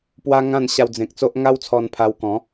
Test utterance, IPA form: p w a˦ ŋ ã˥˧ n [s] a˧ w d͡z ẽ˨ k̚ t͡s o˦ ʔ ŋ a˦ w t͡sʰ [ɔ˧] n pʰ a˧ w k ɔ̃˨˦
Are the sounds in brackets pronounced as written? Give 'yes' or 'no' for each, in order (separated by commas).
no, yes